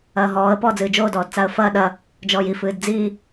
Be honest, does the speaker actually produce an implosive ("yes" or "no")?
yes